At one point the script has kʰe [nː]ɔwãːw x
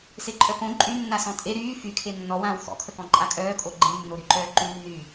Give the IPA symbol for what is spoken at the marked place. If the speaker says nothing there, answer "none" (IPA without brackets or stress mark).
nː